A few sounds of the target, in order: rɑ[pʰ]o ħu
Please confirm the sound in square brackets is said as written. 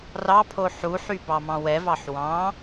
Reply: yes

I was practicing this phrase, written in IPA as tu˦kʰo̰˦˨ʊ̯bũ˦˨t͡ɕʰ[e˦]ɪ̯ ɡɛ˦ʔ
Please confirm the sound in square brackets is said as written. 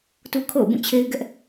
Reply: yes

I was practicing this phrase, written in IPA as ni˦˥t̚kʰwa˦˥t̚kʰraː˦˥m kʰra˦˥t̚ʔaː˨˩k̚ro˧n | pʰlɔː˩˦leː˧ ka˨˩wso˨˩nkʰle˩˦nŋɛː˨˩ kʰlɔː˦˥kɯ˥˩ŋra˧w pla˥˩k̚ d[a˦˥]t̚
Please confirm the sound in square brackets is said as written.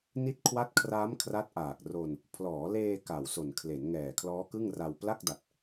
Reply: no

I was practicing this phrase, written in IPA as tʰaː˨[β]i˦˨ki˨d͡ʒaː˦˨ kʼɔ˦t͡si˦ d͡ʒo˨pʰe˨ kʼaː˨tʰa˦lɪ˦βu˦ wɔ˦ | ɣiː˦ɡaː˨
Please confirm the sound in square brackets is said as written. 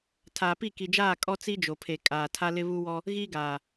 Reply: no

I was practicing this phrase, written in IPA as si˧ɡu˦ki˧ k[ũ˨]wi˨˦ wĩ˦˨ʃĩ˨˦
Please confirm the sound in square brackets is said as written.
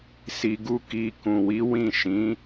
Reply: yes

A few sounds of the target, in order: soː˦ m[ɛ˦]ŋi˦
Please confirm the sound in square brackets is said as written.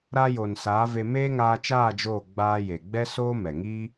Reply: no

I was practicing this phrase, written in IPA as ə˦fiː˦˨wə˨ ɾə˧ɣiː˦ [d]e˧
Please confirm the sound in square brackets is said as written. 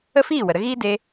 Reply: yes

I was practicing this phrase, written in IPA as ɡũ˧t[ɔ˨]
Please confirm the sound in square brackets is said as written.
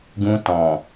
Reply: no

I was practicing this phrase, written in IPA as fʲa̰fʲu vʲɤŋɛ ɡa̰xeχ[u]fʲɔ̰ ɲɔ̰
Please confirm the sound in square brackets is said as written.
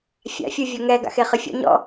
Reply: no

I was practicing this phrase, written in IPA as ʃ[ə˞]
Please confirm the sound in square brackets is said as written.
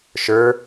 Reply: yes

